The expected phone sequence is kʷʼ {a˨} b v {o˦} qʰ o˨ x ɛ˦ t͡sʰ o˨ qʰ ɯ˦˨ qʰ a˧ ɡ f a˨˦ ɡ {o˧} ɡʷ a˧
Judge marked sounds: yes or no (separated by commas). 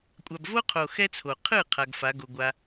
yes, yes, yes